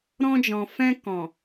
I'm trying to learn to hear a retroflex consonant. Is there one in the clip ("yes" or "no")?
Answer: no